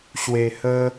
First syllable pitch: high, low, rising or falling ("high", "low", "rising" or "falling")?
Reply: low